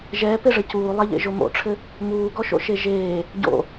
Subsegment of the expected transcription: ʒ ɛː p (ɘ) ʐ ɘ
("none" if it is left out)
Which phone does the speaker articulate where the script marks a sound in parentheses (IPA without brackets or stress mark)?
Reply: e